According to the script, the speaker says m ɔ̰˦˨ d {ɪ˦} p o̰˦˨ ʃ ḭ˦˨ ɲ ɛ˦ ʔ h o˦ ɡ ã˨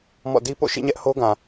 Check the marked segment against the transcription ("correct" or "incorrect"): incorrect